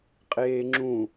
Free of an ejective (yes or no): no